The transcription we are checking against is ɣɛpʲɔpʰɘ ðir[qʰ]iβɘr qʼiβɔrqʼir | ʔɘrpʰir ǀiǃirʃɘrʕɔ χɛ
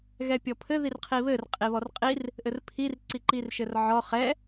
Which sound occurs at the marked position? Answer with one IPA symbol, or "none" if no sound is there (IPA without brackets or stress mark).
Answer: qʰ